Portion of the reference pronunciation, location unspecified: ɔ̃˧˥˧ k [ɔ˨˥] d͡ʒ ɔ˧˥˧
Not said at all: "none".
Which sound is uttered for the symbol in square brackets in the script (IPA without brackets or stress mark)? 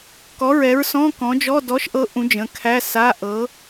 ɔ̃˨˥